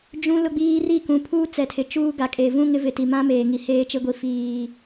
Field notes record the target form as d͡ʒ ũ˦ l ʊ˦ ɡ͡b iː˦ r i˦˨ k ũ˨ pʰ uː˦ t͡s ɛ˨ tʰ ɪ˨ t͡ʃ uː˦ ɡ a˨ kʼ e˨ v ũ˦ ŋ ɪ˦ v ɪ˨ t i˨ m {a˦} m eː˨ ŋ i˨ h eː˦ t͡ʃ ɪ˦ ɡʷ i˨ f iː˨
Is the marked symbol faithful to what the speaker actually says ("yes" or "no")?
no